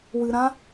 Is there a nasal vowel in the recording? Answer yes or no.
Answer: yes